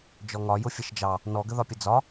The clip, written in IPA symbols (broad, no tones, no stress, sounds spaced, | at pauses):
d͡ʒ ɔ ŋ ɒ j ʊ fʲ ə ʃ d͡ʒ ɑ | n ɔ ɡ ə ð ɒ pʲ ə d͡z ɒ